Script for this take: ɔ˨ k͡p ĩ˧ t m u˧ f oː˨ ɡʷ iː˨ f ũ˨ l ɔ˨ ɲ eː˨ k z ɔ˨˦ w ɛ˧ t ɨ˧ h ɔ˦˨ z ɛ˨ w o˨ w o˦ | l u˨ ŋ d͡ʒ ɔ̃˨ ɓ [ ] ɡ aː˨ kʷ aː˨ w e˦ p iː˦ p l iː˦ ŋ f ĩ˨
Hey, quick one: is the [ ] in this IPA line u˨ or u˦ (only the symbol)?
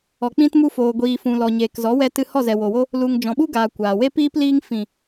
u˦